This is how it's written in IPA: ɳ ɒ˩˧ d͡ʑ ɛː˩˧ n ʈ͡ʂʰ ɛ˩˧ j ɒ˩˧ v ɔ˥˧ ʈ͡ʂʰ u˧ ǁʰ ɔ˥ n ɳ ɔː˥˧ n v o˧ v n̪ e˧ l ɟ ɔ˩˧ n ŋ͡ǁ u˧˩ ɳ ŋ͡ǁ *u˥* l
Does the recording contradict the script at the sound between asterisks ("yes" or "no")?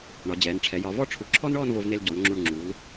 yes